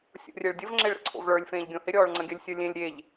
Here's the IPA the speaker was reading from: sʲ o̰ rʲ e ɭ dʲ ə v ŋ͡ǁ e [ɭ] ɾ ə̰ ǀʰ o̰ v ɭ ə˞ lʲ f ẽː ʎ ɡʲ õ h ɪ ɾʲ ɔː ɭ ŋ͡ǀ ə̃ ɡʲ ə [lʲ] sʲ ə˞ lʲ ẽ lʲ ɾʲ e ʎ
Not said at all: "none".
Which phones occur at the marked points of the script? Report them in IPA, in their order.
ɭ, lʲ

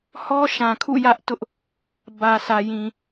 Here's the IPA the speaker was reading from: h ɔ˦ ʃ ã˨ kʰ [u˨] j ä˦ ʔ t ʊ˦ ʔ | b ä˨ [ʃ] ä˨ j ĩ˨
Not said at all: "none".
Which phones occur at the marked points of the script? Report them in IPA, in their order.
ṵ˦˨, s

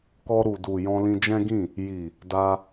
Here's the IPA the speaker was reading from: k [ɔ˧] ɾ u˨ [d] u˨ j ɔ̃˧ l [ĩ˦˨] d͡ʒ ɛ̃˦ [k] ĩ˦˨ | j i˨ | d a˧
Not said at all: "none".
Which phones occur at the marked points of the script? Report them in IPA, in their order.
ɔ˧, d, ĩ˧, ɡ

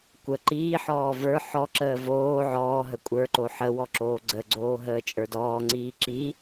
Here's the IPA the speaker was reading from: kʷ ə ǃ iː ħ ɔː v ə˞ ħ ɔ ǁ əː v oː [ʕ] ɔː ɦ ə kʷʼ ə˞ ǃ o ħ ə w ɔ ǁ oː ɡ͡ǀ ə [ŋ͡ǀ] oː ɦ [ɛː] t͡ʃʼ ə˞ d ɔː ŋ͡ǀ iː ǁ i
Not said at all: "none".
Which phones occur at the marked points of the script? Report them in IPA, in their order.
ʕ, ɡ͡ǀ, əː

